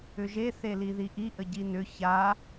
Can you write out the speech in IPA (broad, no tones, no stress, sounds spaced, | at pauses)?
ʏ ʒ e θ e l i ð i ʔ i ʔ ə ɟ i n ʏ ç a